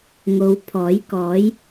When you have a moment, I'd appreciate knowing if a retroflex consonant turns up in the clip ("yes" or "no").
no